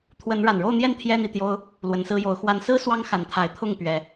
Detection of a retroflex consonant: present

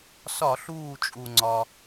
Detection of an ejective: present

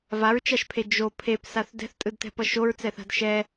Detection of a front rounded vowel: absent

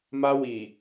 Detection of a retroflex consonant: absent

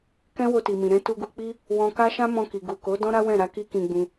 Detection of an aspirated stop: absent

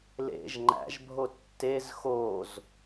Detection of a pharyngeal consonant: absent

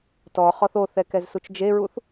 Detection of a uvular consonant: present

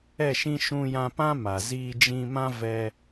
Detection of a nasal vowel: present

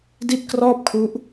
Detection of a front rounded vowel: absent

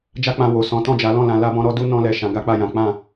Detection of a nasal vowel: present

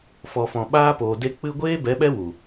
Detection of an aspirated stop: absent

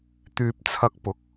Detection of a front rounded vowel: present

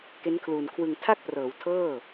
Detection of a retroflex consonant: absent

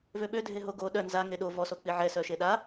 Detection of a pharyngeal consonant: present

